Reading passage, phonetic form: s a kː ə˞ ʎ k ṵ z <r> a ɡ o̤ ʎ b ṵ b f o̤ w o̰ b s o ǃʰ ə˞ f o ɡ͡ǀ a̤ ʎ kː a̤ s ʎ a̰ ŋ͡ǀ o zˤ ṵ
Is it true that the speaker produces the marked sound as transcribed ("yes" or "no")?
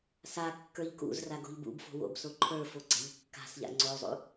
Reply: yes